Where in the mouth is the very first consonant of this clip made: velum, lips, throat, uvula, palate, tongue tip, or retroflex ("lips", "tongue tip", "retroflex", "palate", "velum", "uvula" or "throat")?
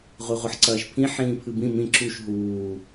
uvula